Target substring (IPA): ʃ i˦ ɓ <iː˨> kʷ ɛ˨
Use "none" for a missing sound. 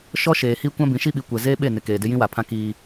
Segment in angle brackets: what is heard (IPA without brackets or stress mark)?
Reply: i˨